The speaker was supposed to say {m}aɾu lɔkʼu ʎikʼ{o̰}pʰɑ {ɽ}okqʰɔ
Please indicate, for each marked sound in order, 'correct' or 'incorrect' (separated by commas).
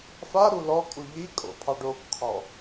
incorrect, correct, incorrect